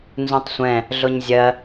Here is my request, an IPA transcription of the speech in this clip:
n z ũ tˤ sʷ ɛ̃ | ɮ ʊ ɲ zʲ ɜ

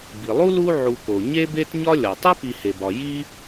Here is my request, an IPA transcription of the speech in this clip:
b i˩ lˠ u˥ l u˦ ʕ u˨ k o˩ ɲ e˥ b e˥ t ɲ ɒ˥ lʲ ɒ˩ tˤ e˥ p i˨ h e˩ b ɒ˩ j i˥

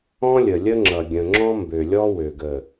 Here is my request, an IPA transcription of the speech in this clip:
ɔ̃˦ lʲ ə˨ lʲ ə˦ ŋ͡ǁ ʌ˨ ɡʲ ə̃˨ ŋ͡ǁ ɔ̃˦ m b ø˨ lʲ ɔ˦ w ø˨ ɡ ə˨

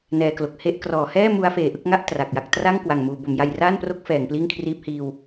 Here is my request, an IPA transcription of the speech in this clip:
n ɛː˨˩ k l o˨˩ k̚ h e˥˩ ʔ k r ɔː˩˦ h ɛː˥˩ m u˦˥ a̯ f eː˨˩ ʔ ɯ˥˩ k̚ ŋ a˥˩ ʔ t r a˨˩ k̚ j a˦˥ k̚ t r a˥˩ ŋ k w a˨˩ ŋ m uː˩˦ b o˩˦ m j a˧ j r aː˥˩ n p r o˦˥ k̚ f ɛː˩˦ ŋ p l iː˥˩ ŋ kʰ r iː˦˥ p̚ h iː˧ w

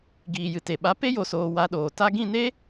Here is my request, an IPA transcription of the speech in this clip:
ɡ iː˨ j ɨ˨ t e˨ ɓ a˨˦ p e˦ j o˨ s oː˨ w a˨˦ ɗ oː˨ t a˧ ɡ ĩ˦˨ n e˦

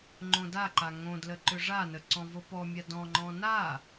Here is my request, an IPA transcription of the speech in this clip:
ŋ͡ǃ õ d a ǃ a ŋ õ d l ə ǃ ʏ ʐ a n ə ǀ ɔ̃ v o p ɔ mʲ a d ɔ̃ ŋ͡ǃ ɔ̃ n a

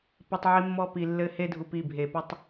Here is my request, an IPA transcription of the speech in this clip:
p ɐ˧ tˤ ʕ i˧ mː ɔ˧ p i˨ lː ɘ˧ h e˧ dʱ u˨ p i˦˨ bʱ e˨ p u˧ tˤ

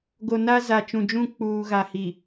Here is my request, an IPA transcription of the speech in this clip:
ɡ o˨ n a˦ z a˨ t͡ʃ ũ˨ d͡ʒ ũ˦˨ k͡p uː˨ ɣ a˨ h i˨

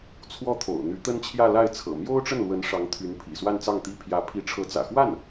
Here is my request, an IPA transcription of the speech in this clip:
t͡sʰ w ɔ˥˩ t̪ʰ o̰˨˩ ʊ̯ n̪ y˧˥ t̪ ə˥ n t͡ɕʰ j ä˥˧ l a˥˩ ɪ̯ t͡sʰ ɤ̰˨˩ m j o˥ ʊ̯ ʈ͡ʂ ə˥˩ n l w ə˧˥ n ʂ ɑ˧˥ ŋ t̪ʰ y˧˥ n pʰ ḭ˨˩ s w a˥˧ n t͡s ɑ˥˩ ŋ t̪ i˥ pʰ j ä˧˥ pʰ i˧˥ ʈ͡ʂʰ ɤ˧˥ t͡s ä̰˨˩ x w a˥˩ n

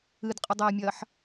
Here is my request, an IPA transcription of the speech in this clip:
ɨ d qʼ ɨ dˤ ɛː mʲ ɐː ħ

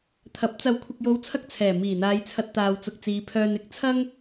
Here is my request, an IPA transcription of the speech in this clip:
t̪ʰ ɐ˨˥ p̚ t͡s ɐ˨ w kʷʰ ɪ˨ k̚ j o˨˧ w t͡sʰ ɐ˧ k̚ t͡sʰ ɛː˨˩ m iː˨˩ n̪ aː˨˧ j t͡sʰ ɐ˧ t̚ t̪ aː˨ w t͡s ʊ˨ k̚ t͡s iː˨˧ pʰ œː˧ n ɪ˨˥ k̚ t͡sʰ ɐ˥ ŋ

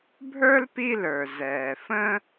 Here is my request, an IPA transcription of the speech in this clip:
bʱ ə˞˥ l p i˦ l ə˞˩ z ɛː˩ f ə̃˦

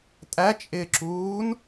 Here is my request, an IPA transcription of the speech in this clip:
tʼ æ t͡ʃʼ ɪː ǁ uː n

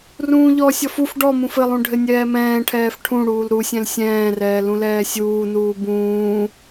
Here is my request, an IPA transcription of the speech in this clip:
r ũː ʎ ɔ sʲ ɔ f u f ɖ ɔ m ũ f ɘ lˠ ũ ɖʱ ɘ nʲ ɛː m ɛ̃ː ʈʰ ɛː f ʈʰ ũ ɽ uː l ɾ u sʲ ɛ̃ l sʲ ɛ̃ː r ɛː l ũ l ɛː sʲ uː n uː b ũː

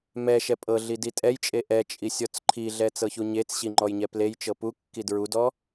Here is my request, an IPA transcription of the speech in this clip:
m ɛ ʃ ɛ pʼ ɤ ɮ i d i tʼ ɛ j t͡ʃʼ e ʔ ɛ t͡ʃʼ i sʲ ɔ t͡s ǃʰ i ɮ ɛ t͡s ɤ ç u ɲ e t͡s ɕ i ŋ͡ǃ ɔ j ɲ ɛ p l e j t͡ʃ ɤ p u kː i d ɹ u d ɔ

